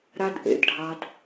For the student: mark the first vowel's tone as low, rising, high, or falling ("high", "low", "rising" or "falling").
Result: high